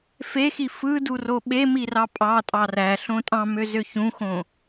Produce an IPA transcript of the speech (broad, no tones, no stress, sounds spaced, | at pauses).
f e x i f ɯ d u r o ɓ e m i r ɑ pʼ ɑ tʼ ɑ r æ ɬ õ tʼ ɑ̃ m ø z ø ç ũ x õ